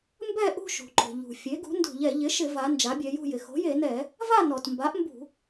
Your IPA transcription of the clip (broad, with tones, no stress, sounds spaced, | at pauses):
m b ɛ˥˨ ʔ ṳ˥˨ ʃ ṳ˩ ǃ o̤˩ ʎ ṳ˩ fʲ e˩˥ ɡ ṳ˩˥ n d ṳ˧˩˧ ʎ ɛ˧˩˧ ʎ ɪ˩˥ ʃ ɪ˧˩˧ v a˩˧ n d͡ʒ a˩˥ bʲ ɛ˩˧ j ṳ˥˨ j ɪ˩ x o̤˩˥ j e˧˩˧ n ɛ˧˩˧ | v a˥˨ n ɔ˩ t m b a˩˥ ʔ m b ṳ˧˩˧